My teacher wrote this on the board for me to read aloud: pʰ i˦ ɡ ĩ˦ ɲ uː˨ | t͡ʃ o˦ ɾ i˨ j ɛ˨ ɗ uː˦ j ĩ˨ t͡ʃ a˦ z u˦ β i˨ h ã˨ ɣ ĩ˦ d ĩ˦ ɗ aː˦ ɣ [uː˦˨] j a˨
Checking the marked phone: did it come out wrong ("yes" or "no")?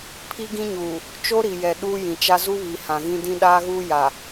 yes